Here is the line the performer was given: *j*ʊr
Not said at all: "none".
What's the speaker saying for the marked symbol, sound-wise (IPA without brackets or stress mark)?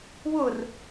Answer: w